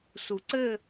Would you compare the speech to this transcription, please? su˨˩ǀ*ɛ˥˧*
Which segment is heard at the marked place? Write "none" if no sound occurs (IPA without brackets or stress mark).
ɘ˥˧